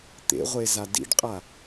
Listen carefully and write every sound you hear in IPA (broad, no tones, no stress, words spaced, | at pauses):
t̪ḛʁʷeza dḭɖqʼa